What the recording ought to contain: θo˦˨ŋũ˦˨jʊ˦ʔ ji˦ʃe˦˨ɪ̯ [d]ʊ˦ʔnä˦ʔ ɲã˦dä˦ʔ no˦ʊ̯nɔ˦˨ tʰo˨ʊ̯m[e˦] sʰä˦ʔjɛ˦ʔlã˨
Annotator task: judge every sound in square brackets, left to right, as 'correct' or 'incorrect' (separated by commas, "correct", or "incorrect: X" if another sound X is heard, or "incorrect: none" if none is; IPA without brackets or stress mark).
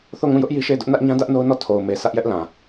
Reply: correct, incorrect: e˨